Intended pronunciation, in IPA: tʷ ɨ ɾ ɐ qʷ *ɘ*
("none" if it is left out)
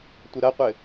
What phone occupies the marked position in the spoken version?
ɘ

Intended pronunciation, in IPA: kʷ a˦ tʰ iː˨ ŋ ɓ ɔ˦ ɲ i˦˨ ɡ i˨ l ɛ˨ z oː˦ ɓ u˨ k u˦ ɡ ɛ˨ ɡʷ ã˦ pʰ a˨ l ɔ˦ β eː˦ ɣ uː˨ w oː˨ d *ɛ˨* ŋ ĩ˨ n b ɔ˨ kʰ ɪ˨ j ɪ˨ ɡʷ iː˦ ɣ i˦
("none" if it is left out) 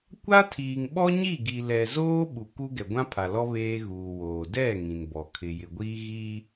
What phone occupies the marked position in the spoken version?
ɛ˦˨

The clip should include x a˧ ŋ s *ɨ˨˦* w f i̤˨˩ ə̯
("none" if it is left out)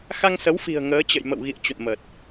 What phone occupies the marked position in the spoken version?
ə˨˦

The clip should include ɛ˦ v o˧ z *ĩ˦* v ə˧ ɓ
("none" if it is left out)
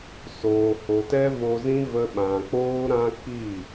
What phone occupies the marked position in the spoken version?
ĩ˦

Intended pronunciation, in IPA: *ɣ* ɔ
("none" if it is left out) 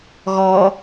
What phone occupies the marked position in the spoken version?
ɣ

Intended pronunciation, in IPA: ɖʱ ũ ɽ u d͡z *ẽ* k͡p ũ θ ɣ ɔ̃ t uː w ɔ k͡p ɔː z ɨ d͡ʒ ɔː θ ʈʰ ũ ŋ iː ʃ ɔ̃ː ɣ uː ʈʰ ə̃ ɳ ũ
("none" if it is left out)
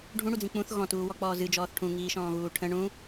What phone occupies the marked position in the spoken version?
ĩ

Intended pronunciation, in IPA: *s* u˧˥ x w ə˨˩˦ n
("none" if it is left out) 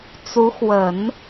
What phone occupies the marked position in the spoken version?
t͡s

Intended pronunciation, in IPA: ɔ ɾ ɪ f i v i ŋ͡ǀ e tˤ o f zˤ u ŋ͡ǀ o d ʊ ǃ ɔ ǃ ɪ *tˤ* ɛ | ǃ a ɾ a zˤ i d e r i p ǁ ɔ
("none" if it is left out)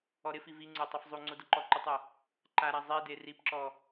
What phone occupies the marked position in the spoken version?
tˤ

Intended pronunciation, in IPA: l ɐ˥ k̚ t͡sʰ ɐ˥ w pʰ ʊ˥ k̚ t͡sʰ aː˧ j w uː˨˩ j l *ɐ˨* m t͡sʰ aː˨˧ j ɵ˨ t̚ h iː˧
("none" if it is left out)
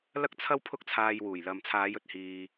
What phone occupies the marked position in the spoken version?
ɐ˨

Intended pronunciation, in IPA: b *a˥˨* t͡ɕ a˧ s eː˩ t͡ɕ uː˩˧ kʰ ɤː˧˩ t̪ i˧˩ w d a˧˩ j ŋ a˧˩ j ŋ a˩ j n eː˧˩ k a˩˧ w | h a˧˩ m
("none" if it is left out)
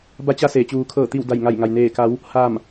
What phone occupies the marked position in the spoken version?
a˧˥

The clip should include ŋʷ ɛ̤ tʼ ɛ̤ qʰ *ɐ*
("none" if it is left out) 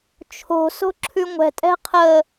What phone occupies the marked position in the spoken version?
ə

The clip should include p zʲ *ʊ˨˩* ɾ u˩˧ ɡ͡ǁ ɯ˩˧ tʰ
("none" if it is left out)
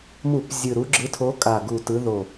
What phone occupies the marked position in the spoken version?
ɯ˨˩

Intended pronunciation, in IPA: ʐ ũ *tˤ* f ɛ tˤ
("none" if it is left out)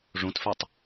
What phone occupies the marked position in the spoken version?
t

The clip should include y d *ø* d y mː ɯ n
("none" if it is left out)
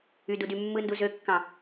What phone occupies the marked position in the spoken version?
u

